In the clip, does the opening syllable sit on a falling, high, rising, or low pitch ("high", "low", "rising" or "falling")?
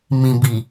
low